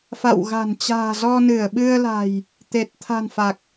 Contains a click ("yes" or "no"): no